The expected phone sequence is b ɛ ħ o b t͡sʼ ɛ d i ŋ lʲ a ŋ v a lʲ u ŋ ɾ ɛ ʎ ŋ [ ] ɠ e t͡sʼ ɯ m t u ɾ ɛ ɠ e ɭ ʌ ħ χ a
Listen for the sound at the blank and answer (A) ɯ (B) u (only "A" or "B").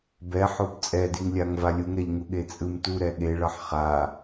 B